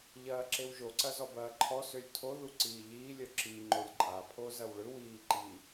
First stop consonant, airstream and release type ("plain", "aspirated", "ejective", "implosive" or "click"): click